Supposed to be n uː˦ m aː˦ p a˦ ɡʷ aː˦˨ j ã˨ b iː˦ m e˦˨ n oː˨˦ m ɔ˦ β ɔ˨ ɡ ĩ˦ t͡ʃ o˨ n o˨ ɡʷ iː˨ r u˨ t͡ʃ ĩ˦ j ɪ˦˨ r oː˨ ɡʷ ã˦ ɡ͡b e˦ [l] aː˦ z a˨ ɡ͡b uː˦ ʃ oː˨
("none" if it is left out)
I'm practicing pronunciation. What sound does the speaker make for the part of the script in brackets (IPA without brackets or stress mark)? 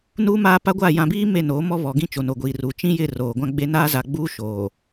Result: n